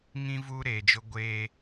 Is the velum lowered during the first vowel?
yes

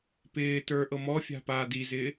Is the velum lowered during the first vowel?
no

